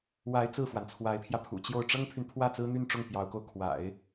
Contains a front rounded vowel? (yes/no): yes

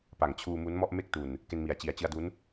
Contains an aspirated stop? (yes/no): yes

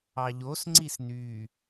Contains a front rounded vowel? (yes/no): yes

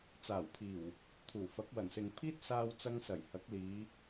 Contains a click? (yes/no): no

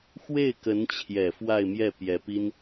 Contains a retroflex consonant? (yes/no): no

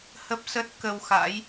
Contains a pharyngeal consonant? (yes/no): no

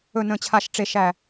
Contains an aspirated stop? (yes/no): yes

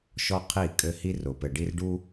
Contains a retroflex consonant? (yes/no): yes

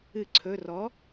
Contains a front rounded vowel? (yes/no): no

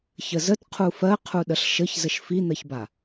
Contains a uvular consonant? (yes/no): yes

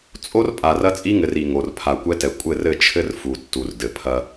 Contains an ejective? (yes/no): yes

